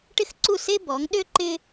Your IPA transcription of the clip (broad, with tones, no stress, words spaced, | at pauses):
ʈɪ˥xǀu˥˩se˥bɔ˩˥ŋ ɗø˥ ǃɪ˥